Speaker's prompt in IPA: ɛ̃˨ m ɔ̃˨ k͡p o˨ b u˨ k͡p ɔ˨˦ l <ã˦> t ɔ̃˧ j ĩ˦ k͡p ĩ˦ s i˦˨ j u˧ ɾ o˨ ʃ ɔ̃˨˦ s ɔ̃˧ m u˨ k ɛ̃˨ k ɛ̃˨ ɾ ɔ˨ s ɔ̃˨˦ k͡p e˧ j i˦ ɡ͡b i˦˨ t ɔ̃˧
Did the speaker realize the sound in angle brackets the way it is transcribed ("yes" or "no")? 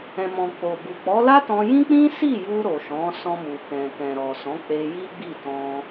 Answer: no